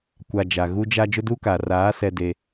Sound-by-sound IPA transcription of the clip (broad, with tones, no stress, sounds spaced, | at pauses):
kʷ a˨ d͡ʒ a˨ ɣ u˦ d͡ʒ a˦ d͡ʒ ʊ˦ d uː˦ k aː˨ r aː˨˦ s ɛ˦ d e˦